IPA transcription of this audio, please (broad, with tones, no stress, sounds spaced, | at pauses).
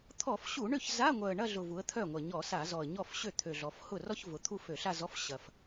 t̪ʰ ɔ˧˩˧ f ɕ u˧˩˧ ɳ ø˥˩ ç z a˧˥˧ ŋʷ œ˨˩ ə̯ ɳ ɐ˥˧ ɮ ʊ˨˩ v u˩˧ ə̯ t̪ʰ œ˥˩ ŋʷ ɐ˨˩ ɲ ɔ˧˩˧ s a˧˩˧ z ɔ˨˩ ə̯ ɲ ɔ˥˩ f ɕ ø˥˩ t̪ʰ ø˨˩ ɮ ɔ˩˧ f h ʊ˥˩ r ɔ˥˧ ç v ʊ˩˧ t̪ʰ u˥˧ f ø˧˩˧ ɬ a˥˧ z ɔ˧˥˧ f ɕ ɐ˨˩ f